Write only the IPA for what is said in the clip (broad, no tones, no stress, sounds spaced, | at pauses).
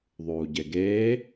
ðˤ uː ɟ e ɡ eː